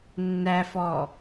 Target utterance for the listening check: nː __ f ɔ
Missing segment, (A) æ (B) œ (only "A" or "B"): A